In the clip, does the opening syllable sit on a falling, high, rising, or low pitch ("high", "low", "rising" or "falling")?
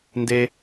high